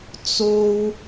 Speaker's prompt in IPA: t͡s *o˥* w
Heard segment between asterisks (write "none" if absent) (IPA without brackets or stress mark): o˥